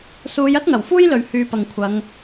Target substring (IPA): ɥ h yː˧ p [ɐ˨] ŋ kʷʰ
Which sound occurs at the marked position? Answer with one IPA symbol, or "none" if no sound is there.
ɐ˨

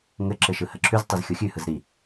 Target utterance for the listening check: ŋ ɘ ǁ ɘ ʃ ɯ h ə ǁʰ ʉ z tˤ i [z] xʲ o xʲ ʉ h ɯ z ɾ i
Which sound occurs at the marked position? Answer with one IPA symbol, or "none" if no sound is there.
z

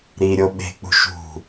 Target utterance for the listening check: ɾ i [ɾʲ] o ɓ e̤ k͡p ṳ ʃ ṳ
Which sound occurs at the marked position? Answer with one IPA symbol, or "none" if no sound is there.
ɾʲ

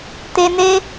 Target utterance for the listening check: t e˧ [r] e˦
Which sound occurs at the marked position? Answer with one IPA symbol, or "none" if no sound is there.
n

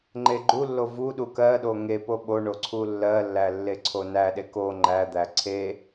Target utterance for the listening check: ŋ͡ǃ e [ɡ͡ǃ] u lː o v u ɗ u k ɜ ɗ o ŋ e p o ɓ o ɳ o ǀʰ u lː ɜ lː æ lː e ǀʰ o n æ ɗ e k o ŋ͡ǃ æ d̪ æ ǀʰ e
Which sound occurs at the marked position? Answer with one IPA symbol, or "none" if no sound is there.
ɡ͡ǃ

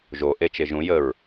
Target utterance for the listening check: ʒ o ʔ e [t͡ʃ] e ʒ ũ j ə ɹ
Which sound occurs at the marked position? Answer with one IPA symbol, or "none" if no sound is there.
t͡ʃ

